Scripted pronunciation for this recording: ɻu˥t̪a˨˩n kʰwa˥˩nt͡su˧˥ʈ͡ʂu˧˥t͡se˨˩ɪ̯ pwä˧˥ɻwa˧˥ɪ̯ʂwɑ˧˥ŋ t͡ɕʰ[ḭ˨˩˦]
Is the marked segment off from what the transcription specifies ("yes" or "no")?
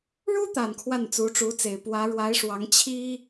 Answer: yes